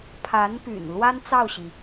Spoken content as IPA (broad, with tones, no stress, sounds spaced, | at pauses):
pʰ a˧˥ n p y̰˨˩ n l w a˥ n t͡s ɑ˥˩ ʊ̯ ɕ i˩